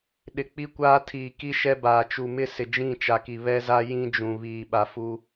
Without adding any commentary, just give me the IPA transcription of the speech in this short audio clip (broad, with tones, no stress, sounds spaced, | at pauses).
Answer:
ɗ ɪ˨ k͡p i˦ kʷ aː˦ tʰ iː˨ k i˦ ʃ ɛ˦ b aː˨ t͡ʃ u˨ m ɪ˦ s ɪ˨ d͡ʒ ĩ˦˨ t͡ʃ a˨ k i˨ β ɛ˦ z a˦ j ĩ˦ d͡ʒ ũ˨ β iː˨ ɓ a˨ f u˦